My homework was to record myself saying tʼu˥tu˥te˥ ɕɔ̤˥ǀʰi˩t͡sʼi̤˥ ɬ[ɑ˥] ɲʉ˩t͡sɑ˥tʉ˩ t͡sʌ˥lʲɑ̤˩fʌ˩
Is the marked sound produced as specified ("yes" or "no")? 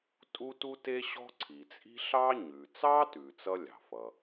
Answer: yes